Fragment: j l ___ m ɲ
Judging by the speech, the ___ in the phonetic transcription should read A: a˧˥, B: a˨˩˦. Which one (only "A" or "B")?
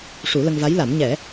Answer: B